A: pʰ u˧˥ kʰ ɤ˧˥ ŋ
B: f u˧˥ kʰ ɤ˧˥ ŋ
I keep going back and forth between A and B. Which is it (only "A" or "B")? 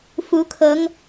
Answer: B